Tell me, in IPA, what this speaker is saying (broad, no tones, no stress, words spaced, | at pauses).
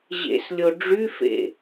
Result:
ʑḛslʲo ɖ͡ʐyfḛ